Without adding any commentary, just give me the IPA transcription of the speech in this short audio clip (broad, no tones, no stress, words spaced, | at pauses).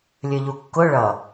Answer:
lʲə˞ʎukːʊ ɭʌ